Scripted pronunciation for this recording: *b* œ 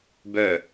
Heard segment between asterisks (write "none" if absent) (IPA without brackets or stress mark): b